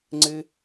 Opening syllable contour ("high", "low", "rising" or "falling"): high